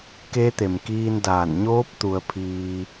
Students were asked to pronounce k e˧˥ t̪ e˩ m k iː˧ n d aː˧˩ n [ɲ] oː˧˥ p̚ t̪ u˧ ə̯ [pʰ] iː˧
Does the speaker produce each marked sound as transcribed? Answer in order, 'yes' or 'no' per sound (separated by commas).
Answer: yes, yes